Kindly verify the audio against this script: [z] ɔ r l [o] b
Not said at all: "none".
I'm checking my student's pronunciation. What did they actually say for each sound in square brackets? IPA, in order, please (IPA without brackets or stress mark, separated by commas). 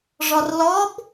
ʐ, ɔ